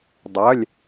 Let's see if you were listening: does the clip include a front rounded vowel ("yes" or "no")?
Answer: yes